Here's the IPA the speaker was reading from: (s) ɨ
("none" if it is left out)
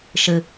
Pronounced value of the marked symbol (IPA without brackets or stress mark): ʃ